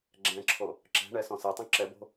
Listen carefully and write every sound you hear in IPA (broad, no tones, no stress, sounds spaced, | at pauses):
ɡ͡ǁ ɛ̃ ǁʰ o | ǁ ɛ̤ ɳ ɛ s ɔ̃ s ɛ tˤ õ ǁ ɛ b o̤